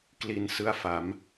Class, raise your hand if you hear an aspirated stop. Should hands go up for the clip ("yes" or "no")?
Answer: no